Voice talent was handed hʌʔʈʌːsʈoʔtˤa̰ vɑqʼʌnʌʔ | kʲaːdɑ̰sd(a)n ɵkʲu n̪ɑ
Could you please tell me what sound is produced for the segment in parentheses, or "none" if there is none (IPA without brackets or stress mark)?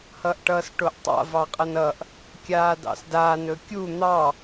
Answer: aː